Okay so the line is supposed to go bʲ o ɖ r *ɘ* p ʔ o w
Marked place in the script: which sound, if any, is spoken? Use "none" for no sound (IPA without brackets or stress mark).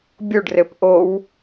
ɘ